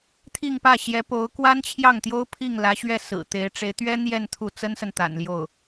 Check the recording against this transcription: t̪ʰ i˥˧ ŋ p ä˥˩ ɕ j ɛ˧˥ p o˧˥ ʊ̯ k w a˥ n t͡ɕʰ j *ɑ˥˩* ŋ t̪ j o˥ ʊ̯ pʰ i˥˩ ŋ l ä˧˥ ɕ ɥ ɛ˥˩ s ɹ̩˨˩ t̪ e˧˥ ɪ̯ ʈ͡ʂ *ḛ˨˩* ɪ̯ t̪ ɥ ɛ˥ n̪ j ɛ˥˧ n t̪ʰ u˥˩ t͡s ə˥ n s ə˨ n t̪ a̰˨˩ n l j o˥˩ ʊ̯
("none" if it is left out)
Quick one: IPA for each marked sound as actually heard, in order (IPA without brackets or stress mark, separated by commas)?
ɑ˥˩, e˧˥